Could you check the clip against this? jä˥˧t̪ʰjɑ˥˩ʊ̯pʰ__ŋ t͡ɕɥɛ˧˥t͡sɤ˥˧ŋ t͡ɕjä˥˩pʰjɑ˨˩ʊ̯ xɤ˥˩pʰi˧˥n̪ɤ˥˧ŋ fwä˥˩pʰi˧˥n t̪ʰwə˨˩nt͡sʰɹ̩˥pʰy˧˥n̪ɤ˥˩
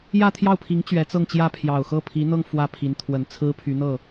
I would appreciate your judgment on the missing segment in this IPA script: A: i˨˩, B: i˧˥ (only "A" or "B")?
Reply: B